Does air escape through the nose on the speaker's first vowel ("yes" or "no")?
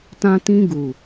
yes